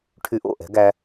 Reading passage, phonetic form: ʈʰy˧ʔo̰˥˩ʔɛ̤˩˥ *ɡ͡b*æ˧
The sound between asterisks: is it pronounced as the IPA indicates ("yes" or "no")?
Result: no